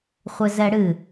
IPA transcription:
χʷɘzɛɽɨ

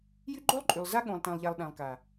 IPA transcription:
jy˦ɡ͡ǃo˦lˠǃʼy˨lˠza˦ ɠõ˨lˠtæ̃˨lˠʎa˨lˠ ɗæ̃˨lˠka˨

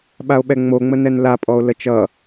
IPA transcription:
ɓao̯ɓɛŋ͡moŋ͡mə nɛnlapʼɔo̯ lət͡ʃʌ

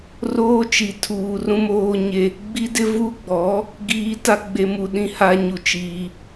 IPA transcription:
roː˦t͡ʃi˨tʰuː˨rũ˦ moː˦ɲe˦ | ɡ͡bi˦dɪ˦ vu˦ɡ͡bɔ˨˦ | ɡiː˦ta˦ ɡ͡be˨mu˨ɗĩ˨ ha˦ɲu˨ t͡ʃiː˦

